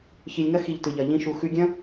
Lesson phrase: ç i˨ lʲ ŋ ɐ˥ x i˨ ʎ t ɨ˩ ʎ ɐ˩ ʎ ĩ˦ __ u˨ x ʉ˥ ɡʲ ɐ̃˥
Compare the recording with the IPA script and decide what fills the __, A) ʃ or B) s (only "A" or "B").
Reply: A